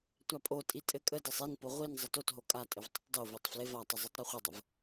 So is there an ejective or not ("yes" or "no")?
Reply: yes